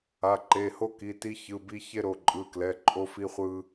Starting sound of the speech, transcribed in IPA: a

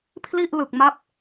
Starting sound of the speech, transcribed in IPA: pʰ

